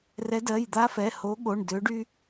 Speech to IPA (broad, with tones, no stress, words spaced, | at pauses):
rɛ˨˦dɜ˩˧˩jd̪a˦fɛ˩˧˩ ho˨˦ɠo˩˧˩ɳ dø˨˦ɖy˦